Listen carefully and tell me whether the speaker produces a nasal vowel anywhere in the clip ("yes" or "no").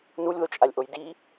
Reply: no